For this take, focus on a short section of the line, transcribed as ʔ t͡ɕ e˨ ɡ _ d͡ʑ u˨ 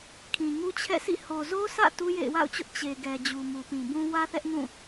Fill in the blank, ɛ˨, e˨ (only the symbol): ɛ˨